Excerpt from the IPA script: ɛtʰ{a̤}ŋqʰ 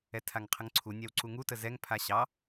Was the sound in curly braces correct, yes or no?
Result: no